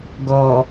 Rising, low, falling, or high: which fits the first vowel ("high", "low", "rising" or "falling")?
low